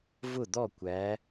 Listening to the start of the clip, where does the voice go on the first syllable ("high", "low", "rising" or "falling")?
falling